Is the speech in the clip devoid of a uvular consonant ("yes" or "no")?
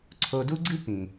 yes